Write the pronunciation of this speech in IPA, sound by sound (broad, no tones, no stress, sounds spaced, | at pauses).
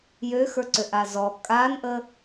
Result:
j ø x ə˞ ǀ ø ʔ a z ɔ kʼ a n ʔ ə